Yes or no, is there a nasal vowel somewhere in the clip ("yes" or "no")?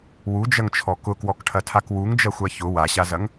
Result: no